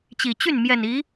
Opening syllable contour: low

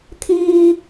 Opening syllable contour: high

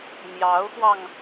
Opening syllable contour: rising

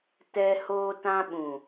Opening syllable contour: high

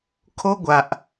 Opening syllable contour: high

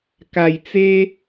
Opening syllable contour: low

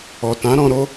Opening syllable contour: low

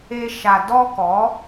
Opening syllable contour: high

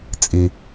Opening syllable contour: low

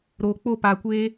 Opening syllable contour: low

